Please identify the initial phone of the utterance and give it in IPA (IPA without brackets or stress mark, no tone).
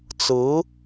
t͡s